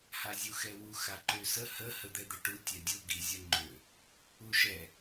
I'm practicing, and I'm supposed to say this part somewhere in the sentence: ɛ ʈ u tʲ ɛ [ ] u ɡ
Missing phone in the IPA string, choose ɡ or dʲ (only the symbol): dʲ